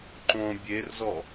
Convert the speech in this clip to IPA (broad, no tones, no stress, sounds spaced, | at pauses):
ǃ õ bʲ e r z ɔ